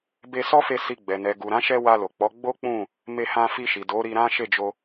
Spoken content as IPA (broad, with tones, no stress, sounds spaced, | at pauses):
b e˧ s ɔ˦ f e˧ s i˧ ɡ͡b ɛ˨ n ɛ˨ ɡ u˨ ɾ ã˨˦ ʃ ɛ˧ w a˧ l o˨ k͡p ɔ˨˦ ɡ͡b o˦ k͡p ũ˦˨ | m e˧ h ã˧ f i˧ ʃ i˨ d o˨˦ ɾ i˧ ɾ ã˦ ʃ e˦˨ d͡ʒ o˧